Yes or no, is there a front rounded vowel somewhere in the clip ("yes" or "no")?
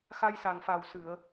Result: no